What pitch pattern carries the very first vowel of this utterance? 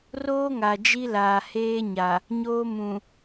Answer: high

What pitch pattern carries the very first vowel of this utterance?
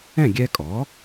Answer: falling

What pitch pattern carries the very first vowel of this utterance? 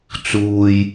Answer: low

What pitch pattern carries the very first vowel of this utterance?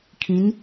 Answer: rising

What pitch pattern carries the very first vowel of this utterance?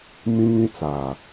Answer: high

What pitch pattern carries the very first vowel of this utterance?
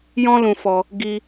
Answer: high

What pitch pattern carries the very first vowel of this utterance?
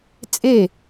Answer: falling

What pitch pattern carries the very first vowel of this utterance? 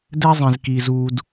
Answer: high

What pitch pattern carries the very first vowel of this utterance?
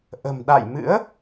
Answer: low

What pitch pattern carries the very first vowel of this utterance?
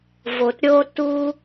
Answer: low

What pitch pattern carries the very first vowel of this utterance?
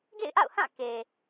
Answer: falling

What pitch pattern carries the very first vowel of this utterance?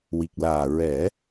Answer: low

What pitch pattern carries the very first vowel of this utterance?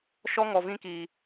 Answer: high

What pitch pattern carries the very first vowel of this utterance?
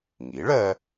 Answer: rising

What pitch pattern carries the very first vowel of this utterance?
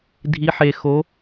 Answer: rising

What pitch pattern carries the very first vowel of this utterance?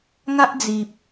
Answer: high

